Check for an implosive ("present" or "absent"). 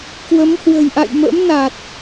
absent